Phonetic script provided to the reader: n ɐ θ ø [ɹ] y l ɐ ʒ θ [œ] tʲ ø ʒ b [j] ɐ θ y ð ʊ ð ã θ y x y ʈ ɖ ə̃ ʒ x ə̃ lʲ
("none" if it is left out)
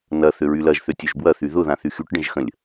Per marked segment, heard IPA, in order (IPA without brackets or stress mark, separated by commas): ɹ, ø, w